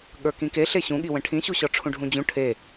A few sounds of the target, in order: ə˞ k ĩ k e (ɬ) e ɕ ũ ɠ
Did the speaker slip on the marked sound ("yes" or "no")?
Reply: no